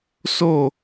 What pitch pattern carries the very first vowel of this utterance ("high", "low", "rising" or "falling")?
falling